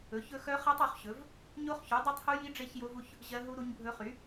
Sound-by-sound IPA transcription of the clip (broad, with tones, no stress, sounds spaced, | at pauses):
ɵ˨˥ ç ɵ˦˥ x œ˦˥ χ ɜ˦˥ tˤ o˨˥ χ ɕ ɵ˨˥ v | ɲ o˦˥ χ ç u˨˥ dˤ i˦˥ tˤ h u˦˥ j i˦˥ ɖ͡ʐ e˦˥ ç j o˦˥ v u˦˥ ç | ʑ ɜ˦˥ ɦ u˦˥ ɾ u˦˥ ɲ bʱ ɵ˦˥ χ y˨˥